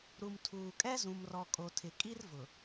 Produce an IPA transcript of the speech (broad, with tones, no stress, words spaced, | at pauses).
ɾu˨mtʰuː˨kʼɛ˦ zũ˨mrɔ˨kʼo˨tʰɪ˨ kʼi˦rvʊ˨